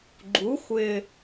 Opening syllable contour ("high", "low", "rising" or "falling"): rising